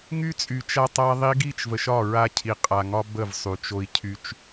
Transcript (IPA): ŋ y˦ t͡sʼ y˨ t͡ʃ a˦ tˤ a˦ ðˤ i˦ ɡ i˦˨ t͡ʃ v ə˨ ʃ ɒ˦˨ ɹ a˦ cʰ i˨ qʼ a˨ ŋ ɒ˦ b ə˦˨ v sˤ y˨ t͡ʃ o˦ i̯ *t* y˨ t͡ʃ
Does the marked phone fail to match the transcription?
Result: yes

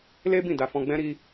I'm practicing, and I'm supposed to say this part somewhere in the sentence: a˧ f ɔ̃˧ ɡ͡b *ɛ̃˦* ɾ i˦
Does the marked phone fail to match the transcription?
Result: no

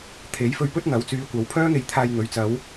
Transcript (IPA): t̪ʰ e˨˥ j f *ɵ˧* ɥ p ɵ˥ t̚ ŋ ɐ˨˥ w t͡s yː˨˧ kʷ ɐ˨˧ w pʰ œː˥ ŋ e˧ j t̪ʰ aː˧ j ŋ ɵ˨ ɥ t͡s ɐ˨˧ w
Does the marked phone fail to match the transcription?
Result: no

